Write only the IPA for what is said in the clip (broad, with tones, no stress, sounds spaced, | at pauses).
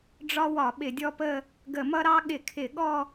ɖ͡ʐ ɒ˥ w ɒ˧˩˧ ɓ ɪ˧˩˧ dʲ ɔ˥˧ p ə˥˧ | ɡ ə˧˩˧ m ʌ˥ ɾ ɑ˥ ɠ ɪ˧˩˧ kʰ ɪ˧˩˧ ɠ ɔ˥˧